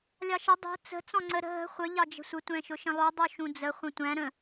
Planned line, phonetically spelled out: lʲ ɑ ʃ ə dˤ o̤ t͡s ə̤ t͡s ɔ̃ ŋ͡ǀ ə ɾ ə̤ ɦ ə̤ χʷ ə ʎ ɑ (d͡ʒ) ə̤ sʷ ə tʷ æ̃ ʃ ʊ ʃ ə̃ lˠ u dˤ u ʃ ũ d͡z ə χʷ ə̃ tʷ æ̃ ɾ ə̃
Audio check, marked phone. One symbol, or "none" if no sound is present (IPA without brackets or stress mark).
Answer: d͡ʒ